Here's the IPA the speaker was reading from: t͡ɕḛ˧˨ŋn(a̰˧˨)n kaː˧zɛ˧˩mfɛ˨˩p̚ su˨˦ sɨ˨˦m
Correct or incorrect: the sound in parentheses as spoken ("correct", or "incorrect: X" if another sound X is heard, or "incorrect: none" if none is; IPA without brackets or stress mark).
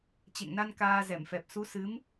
incorrect: a˧